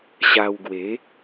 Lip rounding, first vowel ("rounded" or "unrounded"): unrounded